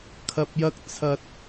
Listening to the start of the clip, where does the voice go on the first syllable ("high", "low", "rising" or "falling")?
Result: low